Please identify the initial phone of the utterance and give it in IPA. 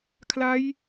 kʰ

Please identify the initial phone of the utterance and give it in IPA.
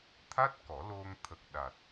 t̪ʰ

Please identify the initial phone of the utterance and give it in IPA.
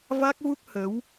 v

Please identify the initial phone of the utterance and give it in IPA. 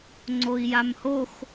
ŋ͡ǀ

